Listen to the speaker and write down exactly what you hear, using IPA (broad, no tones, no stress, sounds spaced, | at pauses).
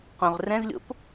q õ ʁ r ɛ̃ z lʲ o̰ p